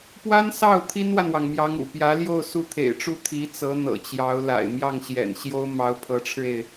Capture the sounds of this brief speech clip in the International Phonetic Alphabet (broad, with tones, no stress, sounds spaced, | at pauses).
p w a˥ n s ɑ˥˩ ʊ̯ t̪ʰ i˥ n w a˨ n w ɑ˩ ŋ m j ɑ˧˥ ŋ ṵ˨˩ p j ä˧˥ l j o˥˧ ʊ̯ s u˥˩ t̪ʰ ḛ˨˩ ɪ̯ ʈ͡ʂ u˥˩ t̪ʰ i˧˥ t͡s ɤ˧˥ n̪ ɤ̰˨˩ t͡ɕ j ɑ˧˥ ʊ̯ l a̰˨˩ ɪ̯ m j ɑ˥˩ ŋ ɕ j ɛ̰˨˩ n ɕ j o˥ ʊ̯ m ɑ˧˥ ʊ̯ pʰ ɤ˧˥ ʈ͡ʂʰ ɻ̩˧ e˩ ɪ̯